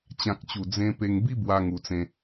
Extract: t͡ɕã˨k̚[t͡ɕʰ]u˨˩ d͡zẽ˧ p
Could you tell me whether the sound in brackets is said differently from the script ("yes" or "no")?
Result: yes